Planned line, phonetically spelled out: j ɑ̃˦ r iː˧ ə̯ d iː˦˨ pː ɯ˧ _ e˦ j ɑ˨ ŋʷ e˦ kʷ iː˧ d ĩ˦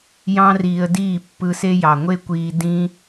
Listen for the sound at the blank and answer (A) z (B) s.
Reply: B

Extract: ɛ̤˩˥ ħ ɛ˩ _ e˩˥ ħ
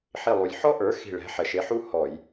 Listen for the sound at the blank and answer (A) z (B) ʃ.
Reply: B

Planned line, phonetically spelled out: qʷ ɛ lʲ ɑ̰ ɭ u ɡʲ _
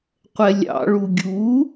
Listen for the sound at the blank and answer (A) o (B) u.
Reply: B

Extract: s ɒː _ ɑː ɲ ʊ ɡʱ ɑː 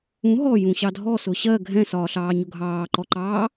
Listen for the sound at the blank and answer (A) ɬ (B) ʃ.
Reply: A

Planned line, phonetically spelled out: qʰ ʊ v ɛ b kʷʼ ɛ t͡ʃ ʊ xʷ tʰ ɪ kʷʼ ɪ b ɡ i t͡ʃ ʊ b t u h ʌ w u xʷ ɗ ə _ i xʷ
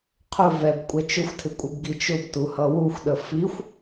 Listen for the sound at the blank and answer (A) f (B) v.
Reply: A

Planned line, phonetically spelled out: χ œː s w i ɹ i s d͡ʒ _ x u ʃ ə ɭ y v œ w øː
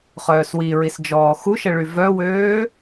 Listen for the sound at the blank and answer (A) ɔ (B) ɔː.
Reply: B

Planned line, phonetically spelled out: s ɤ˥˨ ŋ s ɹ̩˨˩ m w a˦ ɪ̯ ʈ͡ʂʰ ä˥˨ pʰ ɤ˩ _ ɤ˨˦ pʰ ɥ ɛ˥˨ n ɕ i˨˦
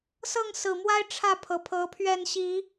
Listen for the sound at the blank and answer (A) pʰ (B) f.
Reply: A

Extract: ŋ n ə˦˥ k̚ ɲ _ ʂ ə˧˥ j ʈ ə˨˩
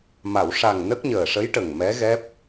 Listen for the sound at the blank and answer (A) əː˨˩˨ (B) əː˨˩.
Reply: B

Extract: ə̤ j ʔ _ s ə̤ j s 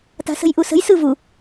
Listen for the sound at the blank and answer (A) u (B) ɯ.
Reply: A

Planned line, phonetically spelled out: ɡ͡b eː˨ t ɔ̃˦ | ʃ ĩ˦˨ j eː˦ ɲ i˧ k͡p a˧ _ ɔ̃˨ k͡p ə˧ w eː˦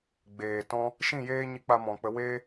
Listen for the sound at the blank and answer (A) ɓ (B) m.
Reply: B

